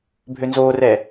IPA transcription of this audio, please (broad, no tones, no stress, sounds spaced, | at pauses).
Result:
bʱ ø n z oː r ɛː